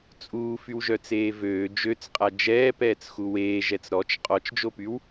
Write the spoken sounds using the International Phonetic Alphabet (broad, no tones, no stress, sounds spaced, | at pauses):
t͡sʼ uː f y w ʒ œ t͡s eː v øː d͡ʒ ø t͡s qʼ a d͡ʒ ɛː p ɛː t͡s x u w eː ʒ ɛ t͡s ɾ ɔ t͡ʃ qʼ ɔ t͡ʃ d͡ʒ o p y w